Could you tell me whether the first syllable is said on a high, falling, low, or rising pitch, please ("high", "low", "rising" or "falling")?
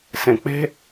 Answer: low